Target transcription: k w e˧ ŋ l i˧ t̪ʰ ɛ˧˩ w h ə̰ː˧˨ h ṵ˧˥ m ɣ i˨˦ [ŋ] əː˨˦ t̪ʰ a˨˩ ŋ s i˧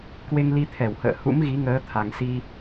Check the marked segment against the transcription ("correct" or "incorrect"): correct